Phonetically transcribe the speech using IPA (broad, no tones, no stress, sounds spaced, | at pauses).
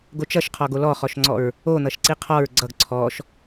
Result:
ɡ o t͡ʃ ʌ ʃ qʰ ɔ ɡ o l ɔ χ ɔ ʃ ŋ͡ǀ ɔ ɹ | o n̪ ʌ ʃ ǀ i qʰ ɔ ɹ ɡ͡ǀ ʌ ɡ ǀʰ ɔ ʃ